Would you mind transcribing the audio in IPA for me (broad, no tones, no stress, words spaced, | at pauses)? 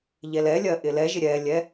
ʎɛlɛlʲɜ ʔɪlɛʒɪ ɾʲɛlʲɛ